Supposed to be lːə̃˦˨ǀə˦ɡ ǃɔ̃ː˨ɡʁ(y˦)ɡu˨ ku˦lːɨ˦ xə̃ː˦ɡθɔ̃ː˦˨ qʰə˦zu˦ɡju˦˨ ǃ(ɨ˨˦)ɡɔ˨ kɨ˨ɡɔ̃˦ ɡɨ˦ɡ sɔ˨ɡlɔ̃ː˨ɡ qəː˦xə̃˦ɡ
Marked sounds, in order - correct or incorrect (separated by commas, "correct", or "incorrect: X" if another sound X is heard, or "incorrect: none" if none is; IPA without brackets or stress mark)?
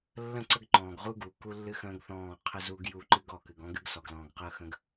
incorrect: u˦, incorrect: ɨ˦